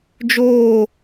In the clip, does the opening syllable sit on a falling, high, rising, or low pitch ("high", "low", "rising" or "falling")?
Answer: falling